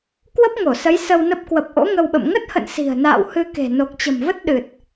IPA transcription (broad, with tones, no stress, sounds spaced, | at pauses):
k w ə˦˥ p̚ ŋ o˧˩ s ə˨˦ j s ə˧ w n ə˦˥ p̚ k w ə˨˩ p̚ ʔ o̰˧˥ ŋ ə˧ w ɓ ə̰˧˨ m ŋ ə˦˥ t̚ h ə̰˧˨ n s i̤˨˩ ə̯ n a̰ː˧˨ w h ɨ˧ k e̤˨˩ n o˨˩ k̚ t͡ɕ ə̤˨˩ m v ə˦˥ t̚ ɗ ɨ˨˩ t̚